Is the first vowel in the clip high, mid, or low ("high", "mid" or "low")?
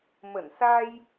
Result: mid